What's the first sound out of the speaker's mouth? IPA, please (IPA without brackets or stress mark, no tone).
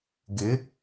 ɡ